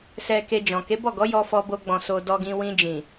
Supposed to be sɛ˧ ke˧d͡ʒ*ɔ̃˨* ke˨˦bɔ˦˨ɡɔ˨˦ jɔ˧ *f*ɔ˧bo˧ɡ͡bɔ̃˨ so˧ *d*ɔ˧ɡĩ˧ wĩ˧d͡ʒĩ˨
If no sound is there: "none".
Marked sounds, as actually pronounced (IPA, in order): ɔ̃˨, f, d

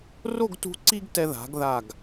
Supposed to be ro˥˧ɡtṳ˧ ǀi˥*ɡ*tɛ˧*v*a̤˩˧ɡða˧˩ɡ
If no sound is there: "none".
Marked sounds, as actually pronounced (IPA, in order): ɡ, ð

